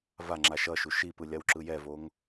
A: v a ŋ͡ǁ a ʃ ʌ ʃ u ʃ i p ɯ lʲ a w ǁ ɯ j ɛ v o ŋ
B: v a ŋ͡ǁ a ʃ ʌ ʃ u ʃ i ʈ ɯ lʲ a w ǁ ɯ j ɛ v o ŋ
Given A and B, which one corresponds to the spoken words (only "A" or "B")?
A